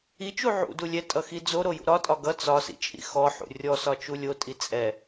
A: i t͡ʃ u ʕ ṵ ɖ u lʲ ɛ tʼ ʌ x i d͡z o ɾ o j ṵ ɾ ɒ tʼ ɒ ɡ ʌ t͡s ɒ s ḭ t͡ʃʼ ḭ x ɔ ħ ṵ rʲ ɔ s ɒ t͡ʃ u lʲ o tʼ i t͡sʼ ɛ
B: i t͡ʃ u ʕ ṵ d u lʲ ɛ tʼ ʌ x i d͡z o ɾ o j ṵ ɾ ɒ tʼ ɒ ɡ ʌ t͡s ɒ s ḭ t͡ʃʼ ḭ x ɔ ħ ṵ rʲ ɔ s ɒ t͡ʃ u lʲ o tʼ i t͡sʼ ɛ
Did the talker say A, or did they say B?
B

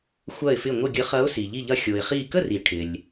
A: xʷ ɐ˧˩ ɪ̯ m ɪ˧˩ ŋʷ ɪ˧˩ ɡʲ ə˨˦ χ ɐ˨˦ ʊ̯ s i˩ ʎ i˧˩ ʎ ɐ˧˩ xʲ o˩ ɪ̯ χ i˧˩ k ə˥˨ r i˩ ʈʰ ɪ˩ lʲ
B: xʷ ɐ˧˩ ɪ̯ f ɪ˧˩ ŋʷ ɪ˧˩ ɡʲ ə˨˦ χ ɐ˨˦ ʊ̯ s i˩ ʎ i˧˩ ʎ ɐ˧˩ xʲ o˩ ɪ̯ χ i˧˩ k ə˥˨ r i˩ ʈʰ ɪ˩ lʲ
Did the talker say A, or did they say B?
B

